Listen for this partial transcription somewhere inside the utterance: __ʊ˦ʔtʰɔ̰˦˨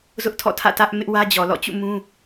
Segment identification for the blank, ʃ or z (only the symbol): z